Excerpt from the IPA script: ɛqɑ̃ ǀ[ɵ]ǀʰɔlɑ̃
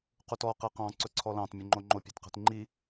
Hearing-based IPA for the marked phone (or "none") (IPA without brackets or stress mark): ɵ